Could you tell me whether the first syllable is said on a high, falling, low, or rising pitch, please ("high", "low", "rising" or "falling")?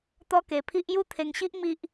high